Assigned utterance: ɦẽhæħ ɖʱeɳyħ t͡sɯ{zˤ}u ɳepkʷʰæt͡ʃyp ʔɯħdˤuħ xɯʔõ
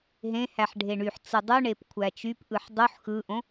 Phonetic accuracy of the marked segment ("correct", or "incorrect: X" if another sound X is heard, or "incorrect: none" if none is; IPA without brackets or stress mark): incorrect: dˤ